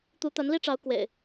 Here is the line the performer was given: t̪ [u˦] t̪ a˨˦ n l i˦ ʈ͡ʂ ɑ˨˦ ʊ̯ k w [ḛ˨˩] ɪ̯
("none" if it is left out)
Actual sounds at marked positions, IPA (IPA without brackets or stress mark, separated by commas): u˨˦, ḛ˨˩